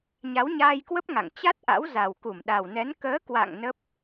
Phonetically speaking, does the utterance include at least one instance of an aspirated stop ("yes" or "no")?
no